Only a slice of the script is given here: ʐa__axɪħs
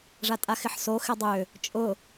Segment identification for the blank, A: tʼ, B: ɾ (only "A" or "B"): A